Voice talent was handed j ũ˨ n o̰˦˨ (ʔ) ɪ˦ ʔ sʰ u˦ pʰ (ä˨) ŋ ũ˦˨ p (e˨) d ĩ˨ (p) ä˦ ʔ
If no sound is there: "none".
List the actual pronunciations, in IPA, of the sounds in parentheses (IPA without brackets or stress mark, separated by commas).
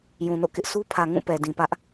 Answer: k, ä˨, ɛ˨, p